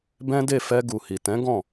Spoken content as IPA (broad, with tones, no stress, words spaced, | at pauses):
bɛ̃˦de˦˨ fɛ˧ɡu˨hi˨tɛ̃˨˦ ɡɔ̃˦˨